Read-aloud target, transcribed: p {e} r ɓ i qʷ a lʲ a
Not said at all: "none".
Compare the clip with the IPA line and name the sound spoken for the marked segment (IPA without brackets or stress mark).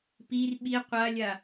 i